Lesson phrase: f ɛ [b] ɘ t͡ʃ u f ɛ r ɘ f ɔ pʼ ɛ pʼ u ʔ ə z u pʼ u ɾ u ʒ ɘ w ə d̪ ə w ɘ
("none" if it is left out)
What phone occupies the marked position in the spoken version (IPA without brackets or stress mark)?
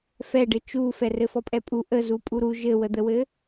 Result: ɖ